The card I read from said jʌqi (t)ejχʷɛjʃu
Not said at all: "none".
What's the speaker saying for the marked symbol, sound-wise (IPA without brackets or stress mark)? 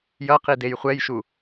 d